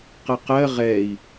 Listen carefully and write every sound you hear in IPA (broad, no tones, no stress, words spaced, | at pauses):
qəqɜ ʁɛi̯